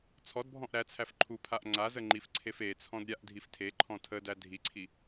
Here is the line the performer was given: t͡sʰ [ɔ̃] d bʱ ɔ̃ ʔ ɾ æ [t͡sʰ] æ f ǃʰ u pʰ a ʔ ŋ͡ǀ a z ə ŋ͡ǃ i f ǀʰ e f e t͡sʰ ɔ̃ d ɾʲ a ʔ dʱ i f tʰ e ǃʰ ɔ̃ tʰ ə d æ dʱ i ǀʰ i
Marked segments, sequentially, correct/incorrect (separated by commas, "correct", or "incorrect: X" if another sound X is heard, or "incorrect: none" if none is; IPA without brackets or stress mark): incorrect: ɔ, correct